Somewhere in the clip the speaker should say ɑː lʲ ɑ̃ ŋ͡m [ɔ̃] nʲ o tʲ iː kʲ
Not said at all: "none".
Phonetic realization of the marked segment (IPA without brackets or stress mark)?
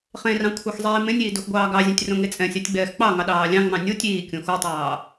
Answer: ɑ̃